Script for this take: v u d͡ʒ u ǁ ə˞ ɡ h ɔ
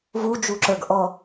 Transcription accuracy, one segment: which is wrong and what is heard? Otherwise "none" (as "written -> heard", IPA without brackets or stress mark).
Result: h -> ʔ